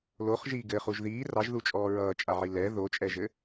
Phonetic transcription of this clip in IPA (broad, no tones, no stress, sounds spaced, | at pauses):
l o χ ʒ iː ɡ ɘ χ u ʒ ð iː r ɑ ʒ ð u t͡ʃʼ ɔː ɹ ʌː t͡ʃʼ a ʕ i l ɛ ð o t͡ʃʼ ɛ ʒ ɘ